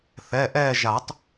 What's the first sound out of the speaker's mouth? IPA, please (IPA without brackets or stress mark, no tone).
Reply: θ